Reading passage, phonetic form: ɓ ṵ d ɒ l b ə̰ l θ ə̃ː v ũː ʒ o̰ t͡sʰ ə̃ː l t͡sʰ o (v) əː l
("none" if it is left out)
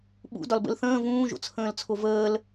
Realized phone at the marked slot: v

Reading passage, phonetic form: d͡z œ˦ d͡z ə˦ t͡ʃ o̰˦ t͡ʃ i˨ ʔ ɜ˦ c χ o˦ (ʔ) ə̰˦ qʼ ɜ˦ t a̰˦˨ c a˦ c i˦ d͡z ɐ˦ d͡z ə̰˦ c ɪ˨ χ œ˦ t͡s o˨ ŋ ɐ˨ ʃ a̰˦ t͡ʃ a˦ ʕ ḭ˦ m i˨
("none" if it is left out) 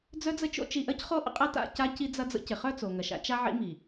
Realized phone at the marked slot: ʔ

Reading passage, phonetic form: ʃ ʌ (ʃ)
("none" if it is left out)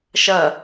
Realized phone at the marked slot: none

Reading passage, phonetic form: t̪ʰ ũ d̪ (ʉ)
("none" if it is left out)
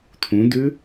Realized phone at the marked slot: ʉ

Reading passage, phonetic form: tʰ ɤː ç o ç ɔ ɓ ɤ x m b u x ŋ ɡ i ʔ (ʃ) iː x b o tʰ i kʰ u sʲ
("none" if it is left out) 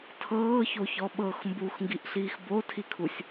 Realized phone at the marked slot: ɬ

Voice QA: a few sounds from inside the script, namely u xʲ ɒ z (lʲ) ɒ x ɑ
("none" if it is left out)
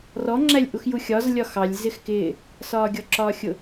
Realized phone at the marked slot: lʲ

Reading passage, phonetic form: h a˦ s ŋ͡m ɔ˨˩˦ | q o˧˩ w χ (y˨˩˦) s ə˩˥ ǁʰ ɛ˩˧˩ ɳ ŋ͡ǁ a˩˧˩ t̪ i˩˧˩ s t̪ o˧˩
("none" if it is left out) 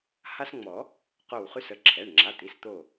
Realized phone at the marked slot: y˦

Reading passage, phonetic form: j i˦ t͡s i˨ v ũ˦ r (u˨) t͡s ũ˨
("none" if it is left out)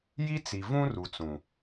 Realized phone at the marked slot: u˨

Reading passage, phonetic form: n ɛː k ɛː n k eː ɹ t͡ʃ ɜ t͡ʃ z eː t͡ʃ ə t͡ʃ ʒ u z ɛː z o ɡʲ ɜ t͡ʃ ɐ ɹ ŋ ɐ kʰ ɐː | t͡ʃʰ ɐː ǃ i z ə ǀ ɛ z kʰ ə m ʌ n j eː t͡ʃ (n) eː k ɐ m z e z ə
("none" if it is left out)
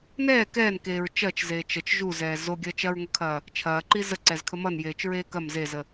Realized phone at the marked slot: ɹ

